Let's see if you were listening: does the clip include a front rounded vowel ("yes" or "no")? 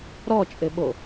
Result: no